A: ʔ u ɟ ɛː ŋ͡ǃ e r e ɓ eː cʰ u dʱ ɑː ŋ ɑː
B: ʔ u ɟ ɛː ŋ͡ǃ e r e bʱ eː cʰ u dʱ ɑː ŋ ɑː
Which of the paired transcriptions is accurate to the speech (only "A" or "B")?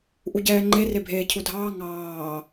B